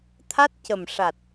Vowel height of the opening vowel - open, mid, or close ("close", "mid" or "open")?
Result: open